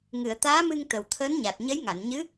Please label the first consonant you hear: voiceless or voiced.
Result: voiced